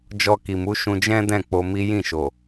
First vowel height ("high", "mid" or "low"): mid